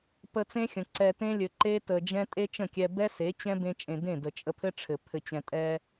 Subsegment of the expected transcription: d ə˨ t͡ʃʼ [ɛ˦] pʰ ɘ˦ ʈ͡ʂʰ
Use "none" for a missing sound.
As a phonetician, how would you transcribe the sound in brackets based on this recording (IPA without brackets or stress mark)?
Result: ə˦